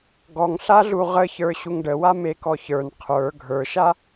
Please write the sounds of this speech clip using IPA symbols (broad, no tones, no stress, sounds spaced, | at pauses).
ɡ ɔ ŋ ɬ a ɮ u ʁ ə ç ə˞ ɕ u ŋ ɖ ə w a m e k ɔ ç ə˞ n qʰ ə˞ ɡʱ ə˞ ʃ a